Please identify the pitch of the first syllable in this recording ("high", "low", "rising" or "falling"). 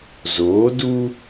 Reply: rising